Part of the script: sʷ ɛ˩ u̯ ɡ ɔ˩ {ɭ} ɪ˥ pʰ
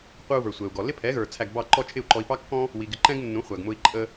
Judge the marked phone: incorrect: l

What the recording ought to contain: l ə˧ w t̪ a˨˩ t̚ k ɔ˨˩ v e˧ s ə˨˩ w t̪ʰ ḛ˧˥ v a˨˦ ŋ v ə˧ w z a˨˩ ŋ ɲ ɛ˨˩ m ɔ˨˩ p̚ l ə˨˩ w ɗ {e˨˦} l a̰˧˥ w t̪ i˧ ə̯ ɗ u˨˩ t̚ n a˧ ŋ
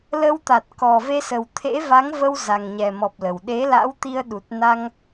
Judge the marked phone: correct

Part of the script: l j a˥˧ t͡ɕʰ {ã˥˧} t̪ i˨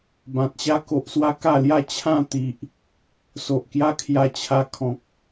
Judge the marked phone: correct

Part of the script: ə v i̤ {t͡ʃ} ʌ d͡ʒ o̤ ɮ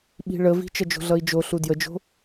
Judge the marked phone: correct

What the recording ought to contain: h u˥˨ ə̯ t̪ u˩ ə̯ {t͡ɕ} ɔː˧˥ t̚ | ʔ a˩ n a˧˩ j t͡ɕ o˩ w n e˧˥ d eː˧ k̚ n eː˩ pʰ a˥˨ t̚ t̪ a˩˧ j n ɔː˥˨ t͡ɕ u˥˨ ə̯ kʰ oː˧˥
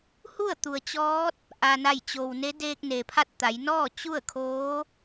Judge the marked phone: correct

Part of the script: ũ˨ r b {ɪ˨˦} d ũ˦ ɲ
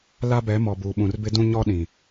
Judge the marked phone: incorrect: ɪ˦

